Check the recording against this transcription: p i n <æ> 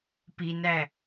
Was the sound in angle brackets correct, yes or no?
yes